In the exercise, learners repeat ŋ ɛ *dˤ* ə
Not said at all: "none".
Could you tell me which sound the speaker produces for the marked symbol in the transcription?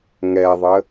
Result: ðˤ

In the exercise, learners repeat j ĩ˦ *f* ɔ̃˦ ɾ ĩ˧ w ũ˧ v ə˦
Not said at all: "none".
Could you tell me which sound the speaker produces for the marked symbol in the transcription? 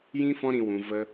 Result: f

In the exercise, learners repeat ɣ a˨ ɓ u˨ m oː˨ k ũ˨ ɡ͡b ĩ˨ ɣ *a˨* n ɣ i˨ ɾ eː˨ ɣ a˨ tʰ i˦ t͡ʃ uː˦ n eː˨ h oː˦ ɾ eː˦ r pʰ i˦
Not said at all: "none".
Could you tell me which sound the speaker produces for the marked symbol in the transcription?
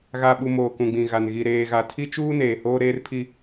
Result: a˨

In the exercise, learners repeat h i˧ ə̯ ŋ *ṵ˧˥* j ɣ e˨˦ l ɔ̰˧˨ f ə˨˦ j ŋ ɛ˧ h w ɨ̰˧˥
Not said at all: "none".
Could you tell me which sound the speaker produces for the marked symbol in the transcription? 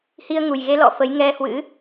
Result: u˨˩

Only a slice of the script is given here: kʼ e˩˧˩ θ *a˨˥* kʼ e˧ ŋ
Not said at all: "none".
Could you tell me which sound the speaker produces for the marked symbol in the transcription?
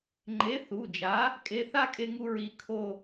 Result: a˥˧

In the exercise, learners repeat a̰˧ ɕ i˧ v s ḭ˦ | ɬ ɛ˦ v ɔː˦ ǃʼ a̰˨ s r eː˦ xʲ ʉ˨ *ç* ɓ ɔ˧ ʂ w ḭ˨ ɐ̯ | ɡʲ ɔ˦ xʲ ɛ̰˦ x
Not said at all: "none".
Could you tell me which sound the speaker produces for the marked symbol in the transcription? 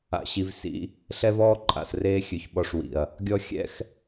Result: ç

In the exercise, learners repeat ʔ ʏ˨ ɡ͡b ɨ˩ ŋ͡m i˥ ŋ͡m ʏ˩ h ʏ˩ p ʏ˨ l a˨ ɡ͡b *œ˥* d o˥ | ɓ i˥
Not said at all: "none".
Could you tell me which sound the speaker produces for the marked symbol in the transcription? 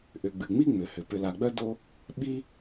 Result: œ˥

